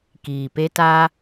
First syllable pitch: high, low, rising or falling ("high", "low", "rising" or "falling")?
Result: low